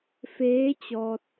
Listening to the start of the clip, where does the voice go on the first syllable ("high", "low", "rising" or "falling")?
rising